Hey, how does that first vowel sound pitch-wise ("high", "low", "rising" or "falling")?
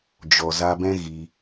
low